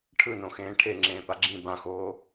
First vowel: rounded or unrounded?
unrounded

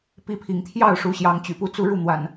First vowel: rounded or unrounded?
unrounded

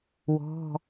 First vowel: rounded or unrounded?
rounded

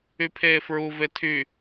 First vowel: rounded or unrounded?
rounded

